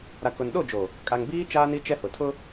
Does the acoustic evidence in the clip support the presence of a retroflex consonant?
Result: no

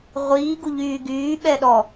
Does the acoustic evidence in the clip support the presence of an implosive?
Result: yes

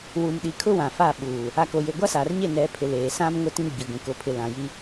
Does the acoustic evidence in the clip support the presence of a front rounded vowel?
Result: no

